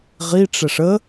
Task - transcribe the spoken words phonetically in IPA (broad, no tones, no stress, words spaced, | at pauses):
ʁiʈ͡ʂɛʂ ə